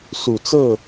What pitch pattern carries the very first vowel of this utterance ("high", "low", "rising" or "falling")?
low